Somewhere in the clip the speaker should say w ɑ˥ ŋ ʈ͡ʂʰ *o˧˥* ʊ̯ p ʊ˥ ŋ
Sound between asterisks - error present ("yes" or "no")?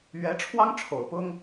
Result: yes